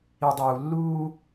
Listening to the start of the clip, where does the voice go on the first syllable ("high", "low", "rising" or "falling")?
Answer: low